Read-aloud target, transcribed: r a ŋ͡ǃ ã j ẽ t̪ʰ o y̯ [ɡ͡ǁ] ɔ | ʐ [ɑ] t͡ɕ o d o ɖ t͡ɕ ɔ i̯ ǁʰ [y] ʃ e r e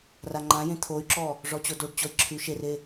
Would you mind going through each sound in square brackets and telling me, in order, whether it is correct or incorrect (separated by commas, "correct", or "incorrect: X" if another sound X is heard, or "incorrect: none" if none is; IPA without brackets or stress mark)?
incorrect: ǁ, incorrect: ɔ, correct